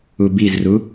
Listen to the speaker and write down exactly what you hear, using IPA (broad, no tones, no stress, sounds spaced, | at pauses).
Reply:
u b i z r u